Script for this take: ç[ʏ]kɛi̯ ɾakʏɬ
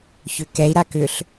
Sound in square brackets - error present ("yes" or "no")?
no